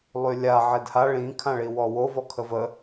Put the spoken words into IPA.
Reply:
lˠ y lʲ a ʕ e d h a ɭ ĩ kʰ ã ɭ i w ɔ w o v ɔ kʰ ə v ə

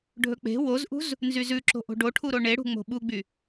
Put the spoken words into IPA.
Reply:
ɖʱ ɵ k͡p e̤ w o z ʔ ṳ z | n z y z ʉ ǁ o̤ ʔ o̤ ɖ o ʈʰ u ɾ o ɳ e ɽ ṳ ŋ͡m o̤ ɓ u ɡ͡b y

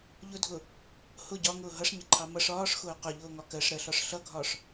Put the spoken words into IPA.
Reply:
ʎ ʊ dʱ ʊ | h ʊ ɟ ɒ ŋ ʊː ɦ ʌ ʂ ɲ ɪ ǃʰ ɑ m ʌ ʂ ɒː ʂ x ʊː q ʊ ʎ ʊː ŋ ɒ k ɜ ʂ ɾ ɜ ɬ ɒ ʂ ɬ ʌ ɡʱ ɒ ʂ

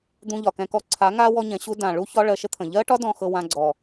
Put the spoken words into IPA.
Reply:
d̪ ũ˧ ʎ ɒ˨ k ɛ̃˧ k ɔ˧ ǀʰ a˨˦ ŋ a˦ w ɔ˦ ɲ ɛ̃˨˦ ɕ u˦ d ã˨ ɭ u˦ ç ɒ˦ ɭ ɜ˧ ʃ ə˦ t̪ʰ ə̃˨ ʎ ɜ˦ ʈ ɒ˦ d ɔ̃˦ x ɤ˧ w ã˧ ɡ͡ǀ ɔ˨

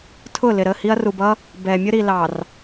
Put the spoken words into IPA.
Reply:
tʰ ʊ˦˨ l ɪ˨ ɾ ə˦˨ h i˦ ɐ̯ r u˨ b ʌ˦ | b ɛ˨ mʲ ʊ˦ ɾ i˨ l ɑ˨ r

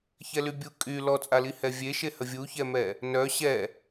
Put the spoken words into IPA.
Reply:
ç ɛ l y bʲ u kʼ y l ɔ t͡sʼ a l i h ɛ vʲ e ʃ e h ə vʲ u ç ɛ m ɛ | n œ ɕ ɛ

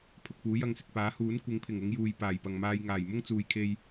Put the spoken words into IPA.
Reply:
pʰ ʊ˨ k̚ p uː˨˥ j ɐ˧ ŋ s ɪ˨ k̚ p aː˨˥ h uː˨˥ n kʷ ɪ˨˧ ŋ pʰ ɪ˨˩ ŋ ʊ˨˧ ŋ j uː˨ j p aː˨˩ j p ɐ˨ ŋ m aː˧ j ŋ aː˨˩ j m ʊ˥ ŋ t͡s uː˨ j kʰ e˧ j

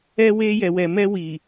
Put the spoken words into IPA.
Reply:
ɛ˧ w e˧ j ɛ˨ w ɛ˨ m ɛ˧ w i˨

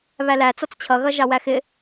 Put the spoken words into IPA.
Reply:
β æ l æ t͡s ɔ t͡s t͡ɕʰ ʌ ɣ ʌ ʒ ɑ w æ x ɪ

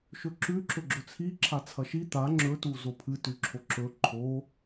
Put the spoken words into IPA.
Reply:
ʃ ɵ ǁ ʉ ǁ ɵ ɡ͡ǁ ɵ t͡sʰ i ǁʰ a t͡sʰ ɐ ʃ i t̪ a ŋ͡ǁ ɵ t u z o pʰ ɨ t ʉ ǁʰ o ǁ ɵ ǃʰ o

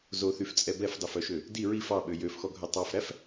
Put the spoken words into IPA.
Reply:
z o θ y f t͡sʼ ɛ b ɛ f dˤ e f œ ʃ ø | d i ɹ i f ɑ ɓ ø j ø f x ɔ ɡʱ œ tˤ ɑ f ɾ æ f

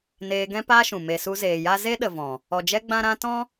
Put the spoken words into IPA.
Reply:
n eː˧ ɡ ɛ̃˦ p aː˦ ʃ ũ˨ m e˨ s u˧ z eː˨ j a˦ z e˦ ɗ ə˨ v ɔ̃˨ | ɔ˨ d͡ʒ ɛ˧ ɡ͡b ã˦ ɾ ã˦ t ɔ̃˦

